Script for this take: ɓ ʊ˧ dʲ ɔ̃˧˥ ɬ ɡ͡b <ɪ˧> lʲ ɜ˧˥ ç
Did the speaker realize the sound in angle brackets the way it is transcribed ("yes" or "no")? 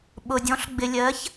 yes